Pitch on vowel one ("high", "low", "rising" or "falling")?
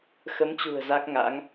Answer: rising